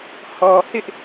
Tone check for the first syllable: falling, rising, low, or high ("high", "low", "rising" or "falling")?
low